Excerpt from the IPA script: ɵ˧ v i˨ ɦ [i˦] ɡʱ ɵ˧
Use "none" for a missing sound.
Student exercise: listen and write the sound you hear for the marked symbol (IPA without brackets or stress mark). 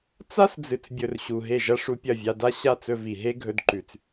e˦